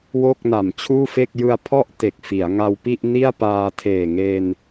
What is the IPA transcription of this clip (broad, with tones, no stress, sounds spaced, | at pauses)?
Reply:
w o˥˩ k̚ n a˨˩ m t͡ɕʰ uː˥˩ f e˥˩ k̚ j ɯ˧ a̯ pʰ ɔ˥˩ ʔ t e˨˩ k̚ f i˩˦ a̯ ŋ a˧ w p i˥˩ ʔ n i˥˩ a̯ p aː˧ tʰ eː˨˩ ŋ e˧ n